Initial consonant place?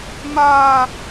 labial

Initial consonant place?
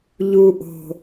palatal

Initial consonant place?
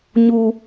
palatal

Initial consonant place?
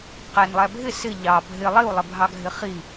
uvular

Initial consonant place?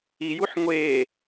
palatal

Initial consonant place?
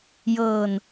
palatal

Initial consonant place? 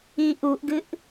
glottal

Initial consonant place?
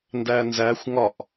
alveolar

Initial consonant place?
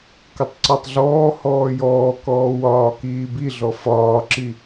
velar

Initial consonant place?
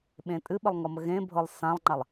labial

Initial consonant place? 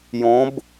palatal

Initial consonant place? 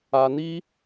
alveolar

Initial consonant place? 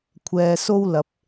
velar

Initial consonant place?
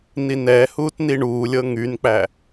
alveolar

